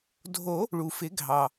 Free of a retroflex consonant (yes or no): no